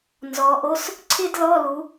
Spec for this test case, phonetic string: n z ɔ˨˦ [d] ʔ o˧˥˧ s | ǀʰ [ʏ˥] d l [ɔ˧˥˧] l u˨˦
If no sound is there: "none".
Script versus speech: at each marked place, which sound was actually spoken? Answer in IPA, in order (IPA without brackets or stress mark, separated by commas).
none, ɪ˥, ɔ˧˥˧